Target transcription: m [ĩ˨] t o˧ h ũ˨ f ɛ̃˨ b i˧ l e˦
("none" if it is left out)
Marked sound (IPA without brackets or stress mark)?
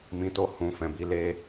ĩ˨